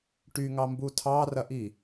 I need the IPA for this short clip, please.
ʈ y ŋ ɑ m b u tʰ ɑ r ɐ ʔ i

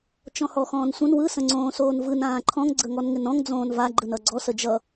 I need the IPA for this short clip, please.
t͡ʃ ɔ̃ h ɔ x ɔ̃ː n sʷ ə̃ n w ɯ s ə̃ ŋ͡ǀ õː s oː n v ɯ n ãː ǃʰ ɔ̃ ŋ ɡ͡ǀ ə ŋ ɔ n ŋ ɪ n ɔ̃ ŋ d͡z õː n v a ɡ͡ǃ ɯ n ʌ ɡ͡ǀ ɔ s ə d͡ʒ ʌ

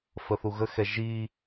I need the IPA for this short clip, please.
f ə θ u ɣ ə x ɛ ʒ i

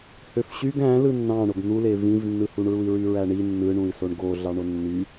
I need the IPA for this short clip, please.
h ø f ɕ y ɡ æ̃ l ɯ nː ɑ̃ ɳ o ɡ n̪ u l e v ĩ v nː ɯ h u ɳ ɹ u i̯ ɹ y ɹ æ ɳ i nː ɯ ɳ ũ i̯ s o ɳ ɡ o ɮ ɑ ɳ o nː y

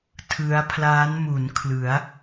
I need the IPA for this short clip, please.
tʰ ɯ˦˥ a̯ pʰ l aː˦˥ n m u˩˦ n kʰ l ɯ˩˦ a̯

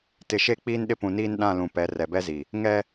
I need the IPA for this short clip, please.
t ɪ˨ ʃ e˦ k͡p iː˦ n ɗ ɪ˦ p ũ˨ n iː˦ n ɗ ã˦˨ l ũ˨ p ɛ˨˦ r ɛ˨ b ɛ˦ z i˨ | ŋ ɛ˦

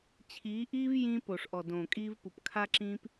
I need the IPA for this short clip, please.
t͡ɕʰ iː˨˦ ʔ iː˦ v j ĩ˦ p o˨ ʂ ʔ ɔ˨ d õː˨ kʼ iː˦ v p u˨ p kʰ a˦ ǁ ĩː˦ p

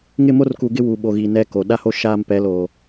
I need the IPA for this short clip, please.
ŋ ɪ˦˨ m o˦ r k u˨ ɡ ɪ˦ w u˨ ɓ o˨ ɣ i˨ n ɛ˦ k o˨ ɗ a˦ h o˦ ʃ aː˦ m p ɛ˨˦ l oː˨

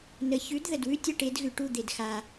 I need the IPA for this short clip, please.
n ə˨ ç ʉ˨˥ d ð ə˨ d w ʉ˥˨ tʲ ɐ˥˨ ʈ e˨˥ d ɣ ʉ˨ ʈ u˥˨ d̪ e˨ d x a˨

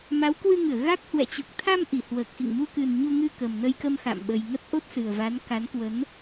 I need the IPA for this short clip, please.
m a˨˦ w k w ɨ˧ ŋ ɨ˧˩ ə̯ ɣ a˦˥ k̚ h w ɛ̰˧˨ t͡ɕ u˨˩ k̚ t̪ʰ a˧ m ʔ i˧˩ h w əː˨˩ k̚ x ḭ˧˨ ŋ m u˧ k ɨ˨˩ n ɲ u˧ ŋ ɨ˧ k ə˨˩ m n ə˧ j k ə˧ m x a̰˧˨ m ɓ ə˨˩ j ŋ ə˦˥ t̚ ʔ o˦˥ t̚ s ɨ˨˩ ə̯ v a˨˦ n k a˨˦ n k w ə˨˦ n

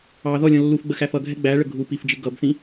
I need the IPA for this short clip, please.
ɑ ð ɔ lʲ ɔ̃ lː u f ɡ͡b ə x æ f ʌ ɡʱ ɛ ɡ͡b æ ɭ ə ɡʱ u p i f d͡ʒ ɪ ɡ ʌ b θ ĩ

